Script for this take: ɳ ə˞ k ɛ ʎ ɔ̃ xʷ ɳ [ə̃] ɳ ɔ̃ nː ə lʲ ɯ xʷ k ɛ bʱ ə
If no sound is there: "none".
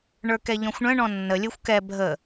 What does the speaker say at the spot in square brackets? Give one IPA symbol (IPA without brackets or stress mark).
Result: ə̃